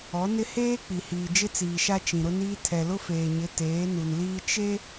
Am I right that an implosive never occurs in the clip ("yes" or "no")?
yes